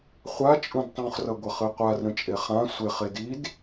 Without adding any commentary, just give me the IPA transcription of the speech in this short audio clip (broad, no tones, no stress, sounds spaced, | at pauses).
χʷ a t͡ʃʼ ũ d tˤ ũ χ r ʌ ɡʷ ʌ χ ɨ qʷ a r ɾ ə̃ t͡ʃʼ e χ ã sʷ e χ e d i d